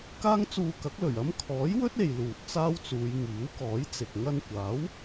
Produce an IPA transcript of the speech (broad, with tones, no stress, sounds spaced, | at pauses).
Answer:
k aː˥ ŋ t͡s uː˧ k ɐ˨˥ k̚ l ɵ˨˩ ɥ ɐ˥ m kʰ ɔː˨˥ j w ɵ˥ t̚ e˨ j l uː˨ t̚ t͡s aː˥ w t͡s uː˨˧ j ŋ iː˨˥ w k ɔː˨˥ j t͡s ɪ˨ k̚ ŋ ɐ˧ n kʷ aː˨˥ w